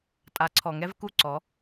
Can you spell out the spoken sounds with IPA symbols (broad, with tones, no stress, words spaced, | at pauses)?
tʼa˨˦ǀʰɔ˨ŋɛ˦v ku˦˨ǀɔ˨˦